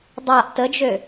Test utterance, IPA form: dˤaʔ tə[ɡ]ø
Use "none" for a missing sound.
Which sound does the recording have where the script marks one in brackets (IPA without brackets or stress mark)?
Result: d͡ʒ